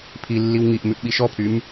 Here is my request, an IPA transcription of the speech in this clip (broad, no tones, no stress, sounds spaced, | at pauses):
pʰ i lː i w ŋ i ʔ m ʉ ʔ ɓ i ʃ ɔ pʰ y m